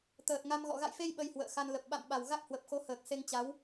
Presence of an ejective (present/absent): absent